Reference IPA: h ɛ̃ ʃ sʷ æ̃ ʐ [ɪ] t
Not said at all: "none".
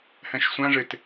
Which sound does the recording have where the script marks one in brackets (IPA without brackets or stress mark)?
ɪ